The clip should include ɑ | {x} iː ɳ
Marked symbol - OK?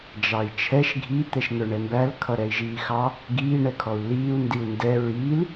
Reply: no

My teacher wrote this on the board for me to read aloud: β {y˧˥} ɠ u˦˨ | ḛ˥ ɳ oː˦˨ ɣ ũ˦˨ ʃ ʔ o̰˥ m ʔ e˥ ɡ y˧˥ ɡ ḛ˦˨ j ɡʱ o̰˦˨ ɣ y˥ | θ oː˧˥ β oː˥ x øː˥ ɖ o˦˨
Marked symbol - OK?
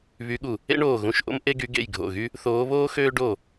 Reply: yes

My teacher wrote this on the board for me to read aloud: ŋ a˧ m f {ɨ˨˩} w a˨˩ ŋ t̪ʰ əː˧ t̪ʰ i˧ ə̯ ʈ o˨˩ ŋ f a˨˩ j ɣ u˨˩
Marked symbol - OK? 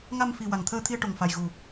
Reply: no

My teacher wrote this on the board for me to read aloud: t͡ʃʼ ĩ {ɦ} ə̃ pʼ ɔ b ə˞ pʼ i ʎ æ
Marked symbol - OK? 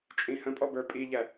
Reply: no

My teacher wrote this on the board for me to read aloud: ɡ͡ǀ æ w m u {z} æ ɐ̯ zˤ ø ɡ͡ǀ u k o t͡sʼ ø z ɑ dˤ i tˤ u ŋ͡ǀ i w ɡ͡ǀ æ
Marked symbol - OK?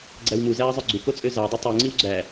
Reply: yes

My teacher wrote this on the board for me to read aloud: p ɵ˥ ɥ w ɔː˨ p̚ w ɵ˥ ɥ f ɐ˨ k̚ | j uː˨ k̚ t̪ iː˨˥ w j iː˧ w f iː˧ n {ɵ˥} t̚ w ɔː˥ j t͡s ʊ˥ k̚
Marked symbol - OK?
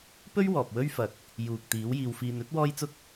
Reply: yes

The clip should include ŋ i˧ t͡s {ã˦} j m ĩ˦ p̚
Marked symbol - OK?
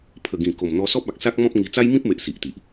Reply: no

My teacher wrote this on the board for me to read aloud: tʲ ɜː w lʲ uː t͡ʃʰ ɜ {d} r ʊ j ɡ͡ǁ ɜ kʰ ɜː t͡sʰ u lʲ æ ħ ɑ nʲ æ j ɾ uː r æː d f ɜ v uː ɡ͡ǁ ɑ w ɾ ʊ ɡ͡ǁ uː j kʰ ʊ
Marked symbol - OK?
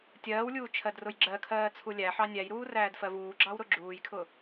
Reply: yes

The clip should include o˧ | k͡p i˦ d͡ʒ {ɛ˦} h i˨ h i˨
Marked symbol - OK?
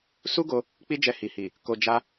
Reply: no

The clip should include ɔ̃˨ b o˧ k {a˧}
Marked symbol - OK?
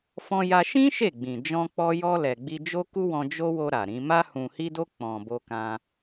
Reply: no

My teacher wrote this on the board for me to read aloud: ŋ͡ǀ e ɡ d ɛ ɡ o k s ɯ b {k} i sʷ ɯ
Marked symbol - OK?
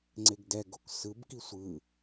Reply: yes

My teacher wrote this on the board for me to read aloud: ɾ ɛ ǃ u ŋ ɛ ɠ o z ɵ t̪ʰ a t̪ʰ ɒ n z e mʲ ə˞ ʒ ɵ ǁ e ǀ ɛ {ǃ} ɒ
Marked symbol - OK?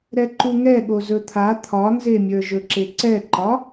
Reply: yes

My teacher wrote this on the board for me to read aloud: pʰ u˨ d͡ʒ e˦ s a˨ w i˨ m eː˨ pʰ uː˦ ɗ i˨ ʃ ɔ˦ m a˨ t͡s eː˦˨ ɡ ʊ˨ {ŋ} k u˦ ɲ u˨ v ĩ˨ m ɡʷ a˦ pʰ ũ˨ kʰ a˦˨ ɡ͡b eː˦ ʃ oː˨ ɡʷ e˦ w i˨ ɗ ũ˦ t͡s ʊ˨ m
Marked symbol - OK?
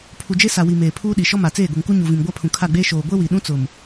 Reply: yes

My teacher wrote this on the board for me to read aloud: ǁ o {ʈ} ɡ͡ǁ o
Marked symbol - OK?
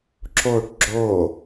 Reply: yes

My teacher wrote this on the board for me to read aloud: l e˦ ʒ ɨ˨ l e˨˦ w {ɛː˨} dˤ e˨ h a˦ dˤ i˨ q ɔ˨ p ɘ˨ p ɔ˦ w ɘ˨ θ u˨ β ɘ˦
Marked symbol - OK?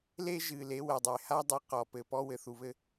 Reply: no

